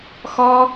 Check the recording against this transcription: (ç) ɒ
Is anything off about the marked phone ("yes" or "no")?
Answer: yes